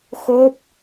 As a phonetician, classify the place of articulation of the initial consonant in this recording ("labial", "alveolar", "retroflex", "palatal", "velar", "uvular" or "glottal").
velar